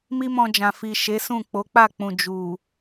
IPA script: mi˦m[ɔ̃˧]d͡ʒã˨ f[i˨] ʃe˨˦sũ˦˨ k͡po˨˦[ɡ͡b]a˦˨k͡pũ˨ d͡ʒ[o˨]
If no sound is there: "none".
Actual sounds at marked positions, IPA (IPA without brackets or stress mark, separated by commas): ɔ̃˧, i˨, k͡p, u˨